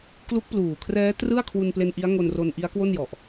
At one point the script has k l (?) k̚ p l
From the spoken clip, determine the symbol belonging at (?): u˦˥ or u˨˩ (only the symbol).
u˦˥